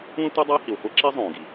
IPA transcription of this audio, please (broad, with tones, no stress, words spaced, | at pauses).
ũ˥ə̯tʷɛ˥ dˤʌː˥hi˩wχʷɛ˥ǁi˥ zˤõː˩ɡi˩